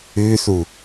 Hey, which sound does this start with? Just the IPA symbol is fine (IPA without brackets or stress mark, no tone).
ʉ